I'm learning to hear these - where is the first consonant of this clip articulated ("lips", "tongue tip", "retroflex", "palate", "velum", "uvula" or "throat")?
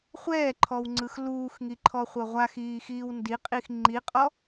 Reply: uvula